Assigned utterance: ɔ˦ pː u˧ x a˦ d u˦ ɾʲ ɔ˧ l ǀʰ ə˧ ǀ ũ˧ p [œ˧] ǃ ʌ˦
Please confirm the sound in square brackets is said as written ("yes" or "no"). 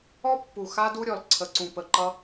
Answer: no